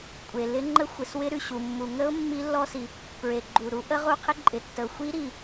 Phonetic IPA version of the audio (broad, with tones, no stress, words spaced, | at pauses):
kʷʼe˩lɪ˦˥ ŋ͡ǃə˦˥xʷɪ˩swɪ˦˥ ɾʉ˩ɕu˩ mːu˩ŋə˦˥ʊ̯ mːi˦˥lːɔ˦˥si˩ | pɹe˩ɡ͡ǃu˩ɾu˦˥ ʔə˦˥ ʁu˦˥qʰɪ˦˥ǃʼɪ˩tːə˩ʊ̯ xʷi˦˥ɾi˩